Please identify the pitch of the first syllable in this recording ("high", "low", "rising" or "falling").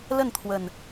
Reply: falling